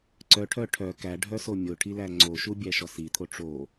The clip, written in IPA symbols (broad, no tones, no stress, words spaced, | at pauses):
ǀœʈʰœ ʈʰœ kæ ɖʱœsomʲoʈʰi læŋ͡ǀoʃu bʲæʃɔsit̪ʰo ʈ͡ʂo